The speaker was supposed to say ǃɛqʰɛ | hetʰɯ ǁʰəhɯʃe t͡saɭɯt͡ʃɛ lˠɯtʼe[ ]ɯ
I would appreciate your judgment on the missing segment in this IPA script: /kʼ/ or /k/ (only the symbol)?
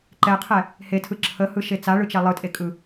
kʼ